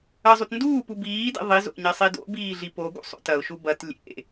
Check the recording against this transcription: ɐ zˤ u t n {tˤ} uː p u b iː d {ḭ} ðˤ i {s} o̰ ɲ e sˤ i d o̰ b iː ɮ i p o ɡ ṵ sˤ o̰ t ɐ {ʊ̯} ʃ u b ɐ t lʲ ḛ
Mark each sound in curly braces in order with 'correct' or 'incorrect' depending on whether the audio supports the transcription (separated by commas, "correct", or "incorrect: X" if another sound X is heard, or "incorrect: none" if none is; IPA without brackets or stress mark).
incorrect: d, incorrect: ḛ, incorrect: z, correct